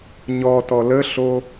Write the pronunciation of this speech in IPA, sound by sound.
ɲ ɔ t ɔ l ə ɬ o

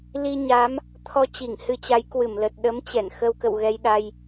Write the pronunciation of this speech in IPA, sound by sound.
l i˧ ɲ a˨˦ m | t̪ʰ ɔ˧ t͡ɕ i˧˩ ŋ h ɨ˧ t͡ɕ a˨˦ j k w ɨ˧˩ m l ə˨˩ t̚ ɗ ə˨˦ m t͡ɕ ɛ˧˩ n x ə˧ w k ə̰˧˨ w ɣ ɛ˧ j ɗ a˧ j

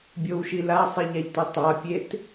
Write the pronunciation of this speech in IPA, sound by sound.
bʲ o w ʃ i l a sˤ i ʎ a ʎ t u tˤ a pʲ e t

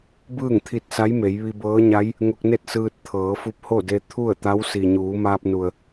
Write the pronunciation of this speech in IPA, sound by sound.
b ɯː˥˨ ŋ t̪ʰ i˧ t̚ s a˧˥ j m e˩˧ j ʋ i˧ b ɤː˧˥ ɲ a˧˥ j | ŋ o˧ k̚ n e˥˨ t̚ s ɯː˧ t̚ t̪ʰ ɤː˩˧ f u˧˥ p̚ h o˥˨ d e˧ t̪ʰ u˥˨ ə̯ t̪ a˧˥ w s i˩ ɲ uː˩˧ m aː˧ p̚ n u˩ ə̯

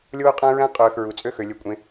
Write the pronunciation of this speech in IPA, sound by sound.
lʲ oː˥ qʼ æ̃˥ ɹ æ̃˥ qʼ øː˨ x ɹ u˩ t͡sʼ ø˦ x ø˩ lʲ ø˩ kʷʼ ẽ˩

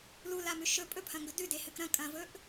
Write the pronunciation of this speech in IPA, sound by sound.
l u l a m ʉ ʃ ɵ pʼ ɵ pʰ ɐ̃ ŋ ɡ ɵ d ʉ d e h ɨ k ɾ ɐ̃ kʼ ɐ̃ v ɵ ʔ

